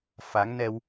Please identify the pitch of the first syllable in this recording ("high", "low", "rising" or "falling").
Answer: rising